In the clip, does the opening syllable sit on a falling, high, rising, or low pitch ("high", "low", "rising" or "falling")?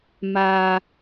low